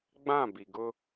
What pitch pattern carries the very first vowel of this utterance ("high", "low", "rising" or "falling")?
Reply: falling